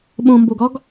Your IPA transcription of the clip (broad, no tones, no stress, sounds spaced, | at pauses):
ɓ õ m b o ɡ ɒ ɡ